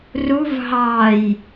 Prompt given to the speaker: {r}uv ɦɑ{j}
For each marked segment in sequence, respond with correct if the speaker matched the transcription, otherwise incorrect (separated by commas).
correct, correct